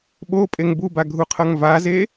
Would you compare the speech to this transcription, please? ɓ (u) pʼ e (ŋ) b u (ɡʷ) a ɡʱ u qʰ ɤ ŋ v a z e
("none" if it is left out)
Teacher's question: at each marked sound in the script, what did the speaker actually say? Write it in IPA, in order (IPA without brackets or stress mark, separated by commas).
o, ŋ, b